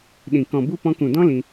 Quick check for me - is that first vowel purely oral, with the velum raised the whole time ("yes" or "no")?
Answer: no